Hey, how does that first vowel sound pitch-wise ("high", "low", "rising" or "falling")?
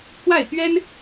falling